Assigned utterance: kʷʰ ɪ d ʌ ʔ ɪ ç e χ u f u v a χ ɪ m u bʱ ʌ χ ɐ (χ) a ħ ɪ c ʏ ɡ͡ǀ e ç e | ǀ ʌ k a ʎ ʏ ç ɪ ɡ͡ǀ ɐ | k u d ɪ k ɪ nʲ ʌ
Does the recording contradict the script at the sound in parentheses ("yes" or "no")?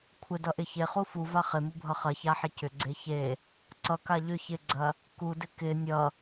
yes